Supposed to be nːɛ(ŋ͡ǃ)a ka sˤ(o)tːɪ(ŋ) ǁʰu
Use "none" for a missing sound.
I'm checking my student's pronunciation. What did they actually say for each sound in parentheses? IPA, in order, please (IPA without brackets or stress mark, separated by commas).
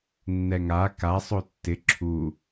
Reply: ŋ, o, none